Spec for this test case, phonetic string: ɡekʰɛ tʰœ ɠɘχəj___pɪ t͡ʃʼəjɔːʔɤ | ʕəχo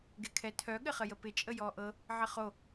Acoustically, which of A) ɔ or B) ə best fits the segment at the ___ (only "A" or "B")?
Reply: B